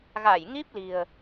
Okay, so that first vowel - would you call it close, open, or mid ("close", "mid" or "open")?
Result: open